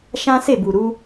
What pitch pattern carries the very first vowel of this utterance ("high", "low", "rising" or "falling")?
high